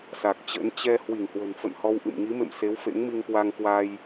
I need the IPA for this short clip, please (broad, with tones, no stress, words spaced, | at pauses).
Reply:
sa˨˩k̚ t͡ɕə̰˧˥n t͡ɕɛ˧ hwi˧˩ŋhwə̤˨˩nfə̰˧˨n hɔ˧wʔɨ̰˧˨m ŋi˨˦mḛ˧˨m se˨˦wfḛ˧˥ŋmi˧ŋkwa˧ŋ kwa˧j